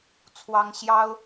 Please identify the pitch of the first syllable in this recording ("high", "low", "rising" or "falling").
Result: high